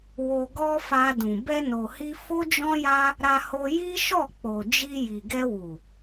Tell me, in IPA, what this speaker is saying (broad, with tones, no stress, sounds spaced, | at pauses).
w o˧ ɡ ɔ˦ f a˧ d ũ˨ b ɛ˧ n o˨ h i˧ f o˦ d͡ʒ ɔ̃˦ j a˦ | ɾ a˧ h o˧ j i˦ ʃ ɔ˦˨ k͡p o˨ d͡ʒ i˧ j i˨ ɡ ɛ˧ w u˨